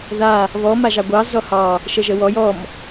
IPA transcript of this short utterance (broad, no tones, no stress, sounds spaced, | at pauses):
ð a | β ɔ m a ʒ ɑ ɡʷ ɑ z ɔ h ɑ | ʃ ə ʒ ə w ɔ j ɔ m